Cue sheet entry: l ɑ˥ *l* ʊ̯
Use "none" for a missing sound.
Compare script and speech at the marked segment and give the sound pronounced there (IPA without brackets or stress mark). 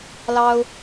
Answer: none